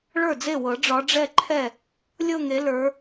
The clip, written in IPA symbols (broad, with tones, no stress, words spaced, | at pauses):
ɭə˞˥˩d͡ze˥˩wɤ˨˩˦ ɖ͡ʐɒ˨˦ɖ͡ʐɛ˥˧ǃʰɛ˥˩ | lʲɤ˥˧ŋe˨˦ lə˞˨˦